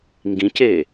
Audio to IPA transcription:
ŋ ɡ ĩ c e

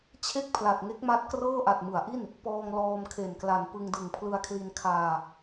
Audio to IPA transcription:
t͡ɕʰ e˥˩ k̚ pʰ l a˨˩ t̚ ŋ e˦˥ k̚ m a˦˥ t̚ k r ɤː˥˩ ʔ a˨˩ t̚ m ɯ˩˦ a̯ ʔ i˥˩ n | p ɔː˧ ŋ l ɔː˧ m kʰ e˨˩ n k l a˨˩ n p ɯ˧ ŋ d ɯ˨˩ ŋ pʰ l ɯ˧ a̯ kʰ l i˧ n kʰ aː˧

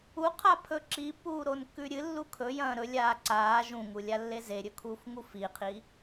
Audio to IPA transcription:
u qʰ a pʰ ɵ ǁ i pː uː ɾ o n kː ʉ ɾʲ ɨ lː u kʰ ɵ j ɐ̃ː ɾ ɵ lʲ aː ǀ aː ʒ ũ ŋ u lʲ a lː e z e ɾʲ ɵ kʰ uː f ŋ u f i qʰ i

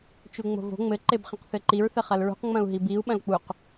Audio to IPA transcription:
t͡ʃ u ŋ͡m o̤ v o̤ ŋ͡m ɘ ǃ e b χ ẽ q θ ɘ ǃ i ɹ θ ɘ χ ɐ l ɹ ṳ q ŋ͡m ɐ̃ u̯ ɦ i b i u̯ ɓ ɐ̃ l k͡p u q

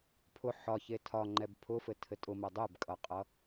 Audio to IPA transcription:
pʰ ʊ ħ ɒ ç e tʰ ɒ ŋ͡ǃ ɛ b pʰ ʊ f ɘ tʰ ɘ tʼ ʊ m ɛ dˤ e b kʼ ʌ qʼ ʌ

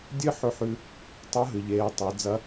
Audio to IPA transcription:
dʲ ɨ˥ ħ ɵ˧˥ ħ ʉ˧ | tˤ o˧˥ ɦ ɨ˩ ʎ eː˩˧ tˤ e˩˧ d͡z ɐ˧˥

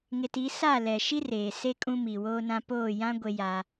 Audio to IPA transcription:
ŋ ɪ˨ t i˨˦ s a˦˨ l ɛ˨ ʃ i˦ r eː˨ s e˦ kʼ ũ˦ m i˨ w oː˦ n ã˦ p oː˦˨ j ã˦ ɡʷ e˦ j a˦

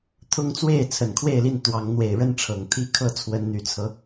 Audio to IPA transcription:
t̪ʰ ʊ˦ ŋ t͡s w e˥˨ ɪ̯ t͡sʰ ə˨˩ n kʰ w e˥˨ ɪ̯ l i˥˨ n t̪ w ɑ˨˦ ŋ n̪ w e˨˩ ɪ̯ ɻ ə˦ n ʈ͡ʂʰ ɤ˨˩ ŋ t̪ʰ i˦ kʰ ɤ˥˨ t͡sʰ w ə˨˦ n n̪ y˨˩ t͡sʰ ɤ˦

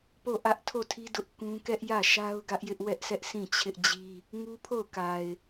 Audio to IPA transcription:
p o˦˨ ʔ ä˦ ʔ tʰ o˦˨ tʰ i˦ d ʊ˦ ʔ k ũ˦ k ɛ˦ ʔ j ä˦˨ ʃ a˦ ʊ̯ ɡ ä˦ ʔ j ɪ˦ ʔ w ɛ˦ ʔ s ɛ˦ ʔ s ĩ˦˨ t͡ɕʰ ɪ˦ ʔ d͡ʑ i˦ | ŋ u˦ pʰ o˦˨ ʊ̯ k a˨ ɪ̯

